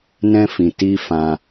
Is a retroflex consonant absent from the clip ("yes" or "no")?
yes